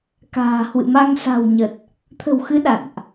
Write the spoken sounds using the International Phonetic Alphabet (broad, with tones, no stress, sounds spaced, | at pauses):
k a̤ː˨˩ h w ɨ̰˧˨ m a˧ ŋ s a̤˨˩ w ɲ ə˨˩ t̚ | t̪ʰ ə̤˨˩ w x ɨ˨˦ ɗ a̰˧˨ n ʔ